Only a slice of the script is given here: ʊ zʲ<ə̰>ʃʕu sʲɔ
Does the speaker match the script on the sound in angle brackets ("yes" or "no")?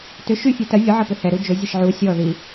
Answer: no